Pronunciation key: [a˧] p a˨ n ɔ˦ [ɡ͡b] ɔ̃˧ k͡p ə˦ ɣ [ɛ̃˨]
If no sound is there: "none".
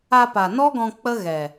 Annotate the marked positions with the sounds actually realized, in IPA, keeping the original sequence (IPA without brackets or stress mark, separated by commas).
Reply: a˧, ɡ, ɛ˨